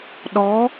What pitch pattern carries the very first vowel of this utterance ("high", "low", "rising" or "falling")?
rising